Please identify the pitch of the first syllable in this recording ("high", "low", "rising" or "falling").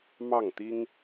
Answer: falling